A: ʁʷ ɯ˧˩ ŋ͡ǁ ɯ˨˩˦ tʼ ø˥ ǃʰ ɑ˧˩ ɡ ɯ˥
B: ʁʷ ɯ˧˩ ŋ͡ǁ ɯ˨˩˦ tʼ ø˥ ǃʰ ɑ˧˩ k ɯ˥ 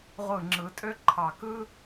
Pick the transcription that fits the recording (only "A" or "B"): B